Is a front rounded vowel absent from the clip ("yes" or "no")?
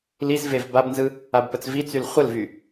no